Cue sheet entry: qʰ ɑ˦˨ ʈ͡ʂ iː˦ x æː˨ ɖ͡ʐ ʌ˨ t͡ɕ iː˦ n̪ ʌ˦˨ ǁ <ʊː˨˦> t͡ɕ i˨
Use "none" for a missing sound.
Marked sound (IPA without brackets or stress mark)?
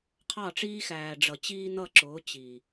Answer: ʊː˨˦